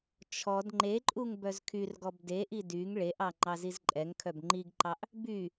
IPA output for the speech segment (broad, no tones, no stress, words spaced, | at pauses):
t͡ʃʰɔd ŋ͡ǃeǃʼuŋ bœzkʰyrɡɔb deʔi dyŋ ɭeʔɑ ŋ͡ǃɑzizǃʼɛŋkʰœb ŋ͡ǃiɡǃɑʔ | by